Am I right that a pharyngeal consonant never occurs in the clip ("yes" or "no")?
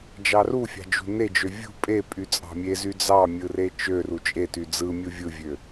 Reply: yes